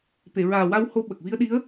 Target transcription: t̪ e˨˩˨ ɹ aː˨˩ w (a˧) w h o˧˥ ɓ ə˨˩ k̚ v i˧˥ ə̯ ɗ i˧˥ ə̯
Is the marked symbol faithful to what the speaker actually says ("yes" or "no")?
yes